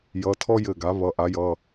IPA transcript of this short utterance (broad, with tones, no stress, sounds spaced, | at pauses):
j ʌ˩˧˩ tʰ ɔ˥ j ɘ˧˩ ɡ a˩˥ β ʌ˩˧˩ ʔ a˩˥ j ʌ˩˧˩